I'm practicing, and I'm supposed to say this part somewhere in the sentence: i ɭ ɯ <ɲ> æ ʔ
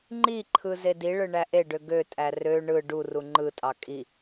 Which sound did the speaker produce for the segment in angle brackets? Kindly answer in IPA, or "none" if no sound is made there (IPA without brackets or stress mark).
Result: ɳ